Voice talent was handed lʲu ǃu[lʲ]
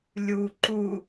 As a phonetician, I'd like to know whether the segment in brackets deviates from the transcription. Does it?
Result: yes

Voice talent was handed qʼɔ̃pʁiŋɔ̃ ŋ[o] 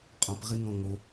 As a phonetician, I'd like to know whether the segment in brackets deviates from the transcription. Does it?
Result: no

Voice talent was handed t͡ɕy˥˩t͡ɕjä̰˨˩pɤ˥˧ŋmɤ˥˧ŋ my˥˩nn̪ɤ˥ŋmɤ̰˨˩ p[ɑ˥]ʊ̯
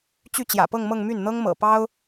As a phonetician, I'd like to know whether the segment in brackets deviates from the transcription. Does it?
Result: no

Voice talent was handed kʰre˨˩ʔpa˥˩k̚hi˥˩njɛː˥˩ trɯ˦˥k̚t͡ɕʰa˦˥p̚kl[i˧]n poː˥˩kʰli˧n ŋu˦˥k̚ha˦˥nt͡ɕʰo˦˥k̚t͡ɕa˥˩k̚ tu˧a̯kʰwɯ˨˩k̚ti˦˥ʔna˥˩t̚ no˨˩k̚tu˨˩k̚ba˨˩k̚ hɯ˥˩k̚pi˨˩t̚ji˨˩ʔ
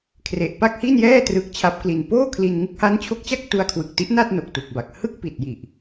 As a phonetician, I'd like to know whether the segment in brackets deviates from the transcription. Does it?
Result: no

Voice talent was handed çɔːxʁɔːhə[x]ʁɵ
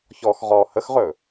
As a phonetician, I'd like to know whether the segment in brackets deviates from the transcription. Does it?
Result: no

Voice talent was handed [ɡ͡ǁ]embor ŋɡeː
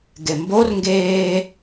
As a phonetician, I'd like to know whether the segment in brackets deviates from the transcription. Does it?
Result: yes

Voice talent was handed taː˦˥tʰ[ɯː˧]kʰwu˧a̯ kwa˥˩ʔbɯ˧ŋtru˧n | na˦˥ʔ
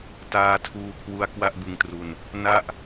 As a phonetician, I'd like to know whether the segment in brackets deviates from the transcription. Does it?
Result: yes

